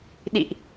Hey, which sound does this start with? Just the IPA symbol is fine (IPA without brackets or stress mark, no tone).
ɗ